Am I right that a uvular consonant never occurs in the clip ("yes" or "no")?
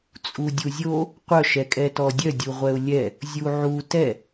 no